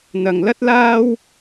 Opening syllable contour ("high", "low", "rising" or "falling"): low